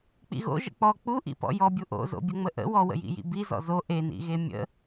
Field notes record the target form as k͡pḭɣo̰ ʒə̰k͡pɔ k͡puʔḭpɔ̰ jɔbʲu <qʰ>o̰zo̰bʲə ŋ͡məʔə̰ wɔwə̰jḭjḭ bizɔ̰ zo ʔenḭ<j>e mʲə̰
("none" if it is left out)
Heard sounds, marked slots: ʔ, ɣ

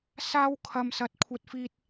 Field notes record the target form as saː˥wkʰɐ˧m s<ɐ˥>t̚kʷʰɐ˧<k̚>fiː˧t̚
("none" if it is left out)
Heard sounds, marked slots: ɐ˧, t̚

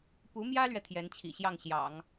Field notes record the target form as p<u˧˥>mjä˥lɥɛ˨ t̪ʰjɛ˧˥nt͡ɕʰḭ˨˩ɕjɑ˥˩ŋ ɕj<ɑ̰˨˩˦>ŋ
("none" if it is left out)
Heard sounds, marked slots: u˧˥, ɑ̰˨˩˦

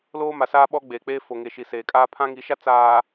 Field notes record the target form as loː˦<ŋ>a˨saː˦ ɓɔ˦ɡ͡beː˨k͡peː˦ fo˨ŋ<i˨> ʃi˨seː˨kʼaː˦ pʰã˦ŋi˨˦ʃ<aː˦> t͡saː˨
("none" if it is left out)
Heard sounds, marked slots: m, e˨, a˦

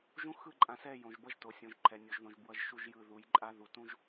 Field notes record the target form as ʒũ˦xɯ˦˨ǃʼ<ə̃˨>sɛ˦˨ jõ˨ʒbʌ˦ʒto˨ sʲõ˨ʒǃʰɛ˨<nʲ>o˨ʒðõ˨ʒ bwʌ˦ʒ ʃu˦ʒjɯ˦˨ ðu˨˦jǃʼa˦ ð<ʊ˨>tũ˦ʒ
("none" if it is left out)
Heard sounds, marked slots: ã˨, nʲ, u˨

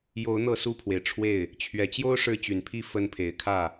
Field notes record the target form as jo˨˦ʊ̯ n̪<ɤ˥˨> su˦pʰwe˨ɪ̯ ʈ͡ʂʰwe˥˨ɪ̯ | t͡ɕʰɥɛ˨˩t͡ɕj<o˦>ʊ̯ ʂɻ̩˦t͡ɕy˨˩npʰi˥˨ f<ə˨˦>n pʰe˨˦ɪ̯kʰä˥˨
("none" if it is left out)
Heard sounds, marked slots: ɤ˥˨, o˦, ə˨˦

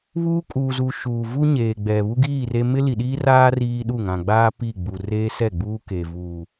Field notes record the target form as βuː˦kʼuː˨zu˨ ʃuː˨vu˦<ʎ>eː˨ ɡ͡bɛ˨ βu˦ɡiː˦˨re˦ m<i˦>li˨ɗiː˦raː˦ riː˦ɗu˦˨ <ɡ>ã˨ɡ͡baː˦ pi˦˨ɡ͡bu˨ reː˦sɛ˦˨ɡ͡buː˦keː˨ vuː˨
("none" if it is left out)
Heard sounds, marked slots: ɲ, ɪ˦, ŋ

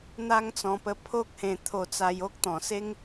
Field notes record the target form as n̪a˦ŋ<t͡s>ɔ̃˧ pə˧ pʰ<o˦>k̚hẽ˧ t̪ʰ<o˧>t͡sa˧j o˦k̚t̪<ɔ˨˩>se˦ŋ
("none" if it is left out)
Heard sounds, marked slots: t͡s, o˦, o˧, ɔ̃˨˩

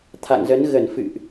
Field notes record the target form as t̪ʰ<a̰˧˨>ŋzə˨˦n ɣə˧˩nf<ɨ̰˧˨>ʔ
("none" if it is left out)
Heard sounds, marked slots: a̰˧˨, ɨ̰˧˨

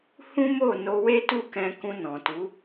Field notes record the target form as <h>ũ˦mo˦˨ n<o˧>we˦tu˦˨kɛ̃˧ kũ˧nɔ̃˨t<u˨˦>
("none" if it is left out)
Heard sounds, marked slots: h, o˧, u˨˦

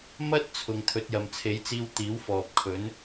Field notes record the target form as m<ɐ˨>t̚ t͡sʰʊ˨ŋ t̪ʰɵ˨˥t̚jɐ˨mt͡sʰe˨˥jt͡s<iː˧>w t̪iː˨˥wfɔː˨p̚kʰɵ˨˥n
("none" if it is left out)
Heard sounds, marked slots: ɐ˥, iː˧

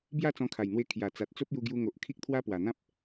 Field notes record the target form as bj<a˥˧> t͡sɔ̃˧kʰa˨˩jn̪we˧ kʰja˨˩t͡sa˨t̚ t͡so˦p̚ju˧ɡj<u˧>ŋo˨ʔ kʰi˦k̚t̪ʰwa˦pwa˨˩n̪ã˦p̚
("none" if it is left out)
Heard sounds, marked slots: a˥˧, u˧

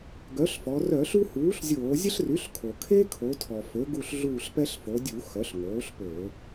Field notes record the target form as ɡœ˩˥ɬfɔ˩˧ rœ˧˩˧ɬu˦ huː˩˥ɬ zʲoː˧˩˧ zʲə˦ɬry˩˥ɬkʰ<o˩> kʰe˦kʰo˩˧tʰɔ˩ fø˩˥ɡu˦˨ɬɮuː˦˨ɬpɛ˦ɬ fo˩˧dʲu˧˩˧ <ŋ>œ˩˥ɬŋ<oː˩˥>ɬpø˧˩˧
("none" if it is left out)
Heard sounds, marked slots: o˩, x, oː˩˥

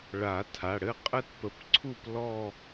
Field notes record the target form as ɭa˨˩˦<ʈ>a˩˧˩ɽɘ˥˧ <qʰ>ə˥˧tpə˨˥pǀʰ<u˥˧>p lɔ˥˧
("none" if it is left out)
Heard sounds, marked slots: tʰ, qʼ, u˥˧

